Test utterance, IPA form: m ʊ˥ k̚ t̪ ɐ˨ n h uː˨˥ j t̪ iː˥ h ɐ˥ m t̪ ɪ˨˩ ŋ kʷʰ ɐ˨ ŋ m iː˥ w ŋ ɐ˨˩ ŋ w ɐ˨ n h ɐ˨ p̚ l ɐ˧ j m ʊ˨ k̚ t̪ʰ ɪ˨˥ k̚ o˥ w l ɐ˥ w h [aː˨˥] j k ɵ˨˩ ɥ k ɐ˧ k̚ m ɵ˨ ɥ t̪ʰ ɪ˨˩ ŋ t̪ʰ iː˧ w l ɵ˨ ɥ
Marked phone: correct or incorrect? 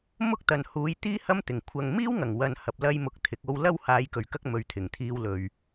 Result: incorrect